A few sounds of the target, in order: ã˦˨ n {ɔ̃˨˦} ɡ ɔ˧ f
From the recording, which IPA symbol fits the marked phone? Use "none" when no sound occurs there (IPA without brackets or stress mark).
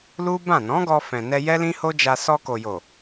ɔ̃˨˦